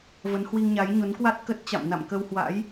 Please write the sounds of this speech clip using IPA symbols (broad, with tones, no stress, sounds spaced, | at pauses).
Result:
v ə˨˦ n h w i˧ ŋ ɲ a˨˦ j ɲ o˨˦ n k w a˦˥ t̚ k ə˦˥ t̚ t͡ɕ a̰˧˨ m n a̰˧˨ m k ə˧ w h w a̰˧˥ j